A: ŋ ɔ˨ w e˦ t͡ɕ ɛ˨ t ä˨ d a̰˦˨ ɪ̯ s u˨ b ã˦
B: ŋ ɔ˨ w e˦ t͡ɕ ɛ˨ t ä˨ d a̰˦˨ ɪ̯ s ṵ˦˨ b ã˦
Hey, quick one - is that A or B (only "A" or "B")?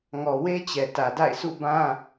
B